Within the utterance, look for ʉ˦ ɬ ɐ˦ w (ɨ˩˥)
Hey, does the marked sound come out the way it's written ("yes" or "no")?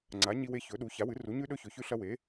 no